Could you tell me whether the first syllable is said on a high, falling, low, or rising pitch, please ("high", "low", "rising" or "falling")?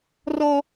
high